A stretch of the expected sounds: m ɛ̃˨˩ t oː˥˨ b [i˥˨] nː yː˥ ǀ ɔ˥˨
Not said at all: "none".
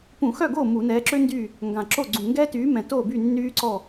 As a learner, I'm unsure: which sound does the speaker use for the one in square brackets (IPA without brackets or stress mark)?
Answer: y˥˨